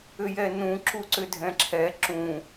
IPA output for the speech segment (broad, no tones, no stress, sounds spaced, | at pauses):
ʏ j ɛ n ũ ǁ u ǀ ʏ dʱ ɛ̃ ǁʰ ɛ ǁ ũ